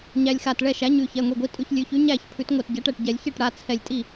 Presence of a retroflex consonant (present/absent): present